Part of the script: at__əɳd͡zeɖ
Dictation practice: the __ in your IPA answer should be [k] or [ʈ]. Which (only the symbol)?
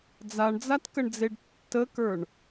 k